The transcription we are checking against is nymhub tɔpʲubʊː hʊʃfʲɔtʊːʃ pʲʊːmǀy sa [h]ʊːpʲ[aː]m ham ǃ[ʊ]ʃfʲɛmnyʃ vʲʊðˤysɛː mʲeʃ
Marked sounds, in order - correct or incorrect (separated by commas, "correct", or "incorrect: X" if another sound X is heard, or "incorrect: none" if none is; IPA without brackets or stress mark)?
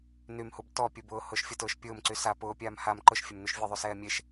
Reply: incorrect: p, correct, correct